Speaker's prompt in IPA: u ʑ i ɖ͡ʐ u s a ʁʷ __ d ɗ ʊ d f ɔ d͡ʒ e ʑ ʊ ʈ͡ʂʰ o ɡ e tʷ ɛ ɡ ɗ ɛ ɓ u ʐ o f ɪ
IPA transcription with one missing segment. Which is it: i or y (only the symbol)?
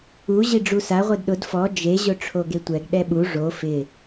i